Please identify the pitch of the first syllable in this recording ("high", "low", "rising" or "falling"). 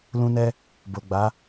high